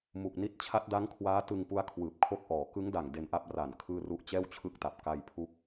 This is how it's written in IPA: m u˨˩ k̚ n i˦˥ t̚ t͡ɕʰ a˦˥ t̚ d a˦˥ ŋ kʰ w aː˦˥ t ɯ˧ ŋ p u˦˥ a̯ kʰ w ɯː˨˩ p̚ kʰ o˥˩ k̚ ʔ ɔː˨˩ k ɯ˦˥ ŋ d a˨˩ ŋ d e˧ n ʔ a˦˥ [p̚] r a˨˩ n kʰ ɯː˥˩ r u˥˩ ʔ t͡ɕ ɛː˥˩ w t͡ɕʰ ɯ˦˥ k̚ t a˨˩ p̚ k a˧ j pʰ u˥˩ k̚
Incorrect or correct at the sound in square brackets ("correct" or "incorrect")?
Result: correct